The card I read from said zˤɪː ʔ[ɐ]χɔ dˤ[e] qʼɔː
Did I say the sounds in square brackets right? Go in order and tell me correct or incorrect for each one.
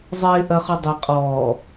correct, correct

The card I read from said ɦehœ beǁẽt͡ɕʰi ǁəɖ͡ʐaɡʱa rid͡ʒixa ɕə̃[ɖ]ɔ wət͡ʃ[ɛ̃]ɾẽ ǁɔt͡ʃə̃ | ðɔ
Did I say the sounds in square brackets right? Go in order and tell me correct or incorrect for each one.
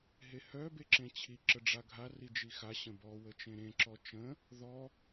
incorrect: b, incorrect: ẽ

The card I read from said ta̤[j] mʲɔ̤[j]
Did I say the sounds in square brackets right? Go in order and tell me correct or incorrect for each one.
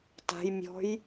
correct, correct

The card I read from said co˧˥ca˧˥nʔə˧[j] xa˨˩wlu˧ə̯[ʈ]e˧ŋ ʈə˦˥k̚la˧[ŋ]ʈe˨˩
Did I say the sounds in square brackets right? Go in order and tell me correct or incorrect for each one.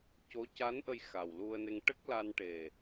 correct, incorrect: n, incorrect: n

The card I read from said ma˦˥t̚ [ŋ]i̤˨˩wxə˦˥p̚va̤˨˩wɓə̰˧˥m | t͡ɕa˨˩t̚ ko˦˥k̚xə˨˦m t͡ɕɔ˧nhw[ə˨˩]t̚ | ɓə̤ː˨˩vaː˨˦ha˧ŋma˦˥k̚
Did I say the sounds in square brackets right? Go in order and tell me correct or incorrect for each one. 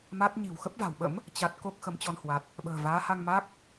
incorrect: ɲ, incorrect: a˨˩

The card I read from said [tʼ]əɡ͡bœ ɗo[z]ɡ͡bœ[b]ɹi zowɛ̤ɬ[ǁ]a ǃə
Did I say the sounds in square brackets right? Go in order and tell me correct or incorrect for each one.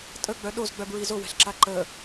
correct, correct, correct, correct

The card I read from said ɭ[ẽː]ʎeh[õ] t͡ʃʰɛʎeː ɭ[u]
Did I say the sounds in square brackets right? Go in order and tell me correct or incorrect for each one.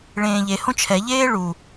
correct, correct, correct

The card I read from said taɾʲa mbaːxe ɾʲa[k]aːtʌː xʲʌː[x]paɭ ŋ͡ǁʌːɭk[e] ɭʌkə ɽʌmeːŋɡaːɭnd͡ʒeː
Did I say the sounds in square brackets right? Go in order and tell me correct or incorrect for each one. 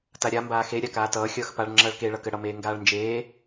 correct, correct, correct

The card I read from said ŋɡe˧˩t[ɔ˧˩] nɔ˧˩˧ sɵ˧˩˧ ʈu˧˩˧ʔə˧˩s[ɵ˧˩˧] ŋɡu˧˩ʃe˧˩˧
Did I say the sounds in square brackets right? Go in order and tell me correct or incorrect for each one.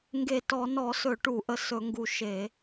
incorrect: ɔ˧˩˧, correct

